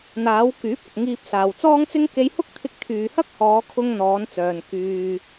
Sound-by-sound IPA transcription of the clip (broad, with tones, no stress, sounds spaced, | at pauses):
n̪ aː˨˧ w k yː˨˥ p̚ ɐ˨ k̚ ŋ iː˧ p̚ s aː˨ w t͡s ɔː˥ ŋ t͡s ɪ˥ ŋ k e˧ j h ʊ˥ k̚ t̪ʰ ɪ˧ k̚ t̪ʰ yː˨ h ɐ˥ k̚ h ɔː˨˧ kʰ ʊ˧ ŋ n̪ ɔː˨˧ n t͡s œː˨ n k yː˧